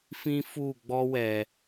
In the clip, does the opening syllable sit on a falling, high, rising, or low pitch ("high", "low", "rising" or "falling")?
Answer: high